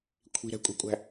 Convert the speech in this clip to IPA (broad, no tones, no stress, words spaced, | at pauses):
kʷʰi̤ɾɛ̤kʷʼi̤kʷʼæ̤